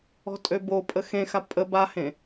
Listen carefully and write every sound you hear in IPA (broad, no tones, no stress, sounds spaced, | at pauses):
ɔ̤ tʼ ø b o pʼ ə x ẽ x a pʼ ə b a h ẽ